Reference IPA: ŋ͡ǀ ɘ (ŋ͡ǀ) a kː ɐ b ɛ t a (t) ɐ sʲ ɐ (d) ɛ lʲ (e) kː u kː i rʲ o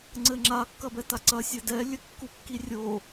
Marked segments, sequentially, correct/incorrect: incorrect: ŋ͡ǁ, incorrect: ǀ, correct, incorrect: ɘ

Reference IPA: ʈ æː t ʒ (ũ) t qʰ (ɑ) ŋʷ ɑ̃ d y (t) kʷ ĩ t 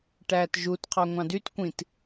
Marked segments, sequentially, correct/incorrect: incorrect: u, correct, correct

